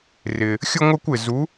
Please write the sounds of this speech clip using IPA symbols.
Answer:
rɪː˧ | xʲʊ˥ŋʷɪː˥kʷɪ˧ zu˧˥

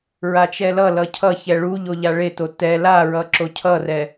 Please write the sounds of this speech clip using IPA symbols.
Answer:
ɹat͡ʃɛlʌlʌ cʰʌçɛ ɭu ʎoʎaɭeto tɛ laɹʌ ǁocʰʌrɛ

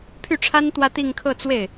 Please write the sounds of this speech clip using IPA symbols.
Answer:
pʰy˥˩ʈ͡ʂʰa˥n t̪wä˥t̪i˥˧ŋ kʰɤ˥˧t͡swe˥˩ɪ̯

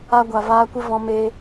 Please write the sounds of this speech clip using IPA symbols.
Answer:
a˧ɡʷa˨ vaː˧kʷə˦vɔ̃˧ meː˧

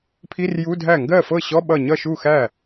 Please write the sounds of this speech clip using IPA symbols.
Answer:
pʰi˧˥˧rju˧˥˧dʱæ˥˩ ŋɡɜ˥˩fɤ˥˩ɕɔ˧˥˧ ɓʌ˥˩ ɲʌ˥˩ʃu˥˩ xæ˥˩

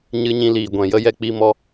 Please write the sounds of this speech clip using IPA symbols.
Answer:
ɲɨ˧ɲĩ˧liː˨ ɡʷɛ̃˨jə˦jɛ˧ k͡pi˧ mɔ˦

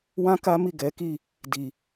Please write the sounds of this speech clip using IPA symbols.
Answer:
wã˦ka˦mi˦˨ ɡɛ˨˦ki˦˨ | di˨

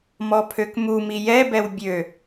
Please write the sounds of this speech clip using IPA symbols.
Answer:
mɔpʰøkmumi jɛbɛw bʲø

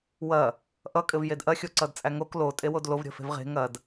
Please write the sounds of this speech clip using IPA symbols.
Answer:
wɐ | ʔʌ kʼɘvjedʔɐ xʲoǀʌdt͡sʼæŋok lo tʼewodlov ɾʲə̤fe̤vʁe̤ ŋɐd

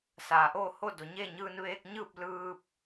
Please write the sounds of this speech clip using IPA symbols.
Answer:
saː˩ʔoː˥˨ho˥˨do˩ ɲe˥˨ɲɯː˧n ʋeː˧k̚ɲɯː˥˨p̚ lɯː˧p̚

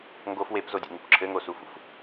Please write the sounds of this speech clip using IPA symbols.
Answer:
ŋɡof wepzodʲḛŋup ǁʰɘŋosufṵf

